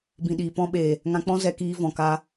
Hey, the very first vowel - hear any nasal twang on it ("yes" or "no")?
yes